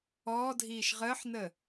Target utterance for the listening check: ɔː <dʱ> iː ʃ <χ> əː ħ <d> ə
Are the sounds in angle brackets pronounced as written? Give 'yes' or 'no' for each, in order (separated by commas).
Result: yes, no, no